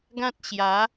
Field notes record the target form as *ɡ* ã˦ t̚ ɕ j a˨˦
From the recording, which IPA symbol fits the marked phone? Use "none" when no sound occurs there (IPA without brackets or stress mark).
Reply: ɡ